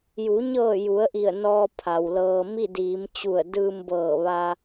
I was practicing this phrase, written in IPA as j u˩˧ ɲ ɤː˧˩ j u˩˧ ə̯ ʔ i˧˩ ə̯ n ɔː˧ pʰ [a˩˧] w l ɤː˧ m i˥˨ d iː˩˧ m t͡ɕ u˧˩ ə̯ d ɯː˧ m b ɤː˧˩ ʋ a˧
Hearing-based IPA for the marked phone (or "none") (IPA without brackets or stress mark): a˩